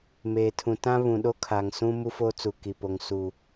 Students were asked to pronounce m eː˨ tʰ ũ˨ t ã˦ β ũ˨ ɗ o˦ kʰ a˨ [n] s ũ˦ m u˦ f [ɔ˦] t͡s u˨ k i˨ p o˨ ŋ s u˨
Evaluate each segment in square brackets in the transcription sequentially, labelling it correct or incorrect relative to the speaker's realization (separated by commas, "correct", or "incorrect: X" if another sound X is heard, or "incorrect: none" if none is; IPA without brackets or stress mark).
incorrect: ŋ, incorrect: o˦